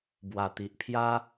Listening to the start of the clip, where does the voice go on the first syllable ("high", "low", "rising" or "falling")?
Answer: low